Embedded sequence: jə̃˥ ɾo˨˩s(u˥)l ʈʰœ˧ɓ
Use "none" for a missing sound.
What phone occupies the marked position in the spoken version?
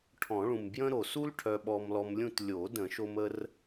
u˥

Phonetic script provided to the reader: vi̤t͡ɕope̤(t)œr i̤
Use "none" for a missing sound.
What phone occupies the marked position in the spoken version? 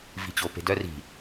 d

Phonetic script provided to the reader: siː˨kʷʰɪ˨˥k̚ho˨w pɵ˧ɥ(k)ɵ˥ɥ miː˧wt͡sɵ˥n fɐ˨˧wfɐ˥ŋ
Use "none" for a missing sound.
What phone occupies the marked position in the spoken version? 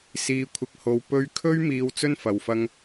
kʰ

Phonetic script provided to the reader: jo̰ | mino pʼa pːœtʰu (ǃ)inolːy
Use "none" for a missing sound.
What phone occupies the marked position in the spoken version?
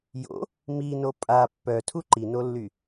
ǃ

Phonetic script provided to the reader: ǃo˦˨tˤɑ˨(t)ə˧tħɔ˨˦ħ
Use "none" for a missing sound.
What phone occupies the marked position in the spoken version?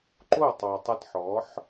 tˤ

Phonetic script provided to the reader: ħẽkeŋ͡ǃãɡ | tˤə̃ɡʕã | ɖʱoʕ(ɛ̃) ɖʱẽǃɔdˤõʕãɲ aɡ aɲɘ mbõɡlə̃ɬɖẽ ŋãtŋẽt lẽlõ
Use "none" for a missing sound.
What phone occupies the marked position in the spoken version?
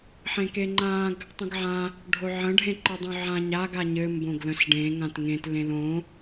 ə̃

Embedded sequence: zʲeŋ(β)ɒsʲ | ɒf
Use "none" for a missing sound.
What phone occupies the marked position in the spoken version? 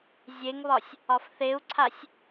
β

